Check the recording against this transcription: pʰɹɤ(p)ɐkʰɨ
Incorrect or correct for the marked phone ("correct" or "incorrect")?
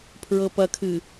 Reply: correct